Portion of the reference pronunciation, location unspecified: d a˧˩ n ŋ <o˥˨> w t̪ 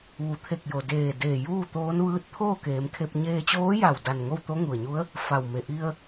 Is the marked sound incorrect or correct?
correct